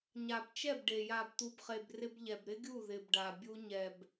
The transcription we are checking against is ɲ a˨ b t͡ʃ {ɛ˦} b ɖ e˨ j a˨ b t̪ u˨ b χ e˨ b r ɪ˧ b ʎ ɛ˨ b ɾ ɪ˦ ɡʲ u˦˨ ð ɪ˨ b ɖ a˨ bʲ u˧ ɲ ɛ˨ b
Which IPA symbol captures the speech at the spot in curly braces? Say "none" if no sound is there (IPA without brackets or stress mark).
ɛ˦˨